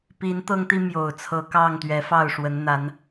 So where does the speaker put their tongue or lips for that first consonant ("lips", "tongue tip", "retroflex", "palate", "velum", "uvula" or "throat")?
lips